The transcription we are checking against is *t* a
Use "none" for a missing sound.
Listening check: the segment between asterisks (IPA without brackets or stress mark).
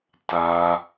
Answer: t